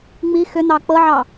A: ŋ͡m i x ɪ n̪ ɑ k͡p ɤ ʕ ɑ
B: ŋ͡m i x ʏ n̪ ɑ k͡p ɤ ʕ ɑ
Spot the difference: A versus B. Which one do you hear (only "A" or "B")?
B